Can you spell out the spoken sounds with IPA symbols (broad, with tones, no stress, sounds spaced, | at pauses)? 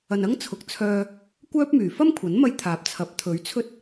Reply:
ɐ˨ n ɐ˥ ŋ t͡sʰ ʊ˨˥ k̚ t͡sʰ œː˧ | kʷ œː˥ p̚ m yː˨˩ f ɐ˥ m kʷʰ ɐ˨˥ n m ɐ˧ j t̪ʰ aː˨˥ p̚ t͡sʰ ɐ˨˥ p̚ t̪ʰ ɵ˨˥ ɥ t͡sʰ ɵ˥ t̚